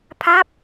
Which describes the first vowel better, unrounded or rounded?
unrounded